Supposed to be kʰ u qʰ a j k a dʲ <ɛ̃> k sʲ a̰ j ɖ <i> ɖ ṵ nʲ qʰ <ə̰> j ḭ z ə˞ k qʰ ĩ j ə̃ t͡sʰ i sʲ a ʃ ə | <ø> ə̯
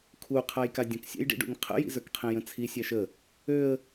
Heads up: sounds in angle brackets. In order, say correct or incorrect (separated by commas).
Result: incorrect, incorrect, correct, correct